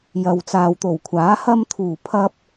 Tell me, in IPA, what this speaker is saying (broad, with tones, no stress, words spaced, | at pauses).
jɐ˨wt͡saː˨wt̪o˨˩wkʷʰaː˨˥ hɐ˧mt̪ʰuː˨˩pʰɐ˧p̚